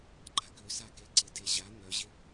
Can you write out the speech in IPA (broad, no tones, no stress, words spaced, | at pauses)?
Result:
ɡ͡ǃakʏsake ǀɪdeʑa n̪œʑɪ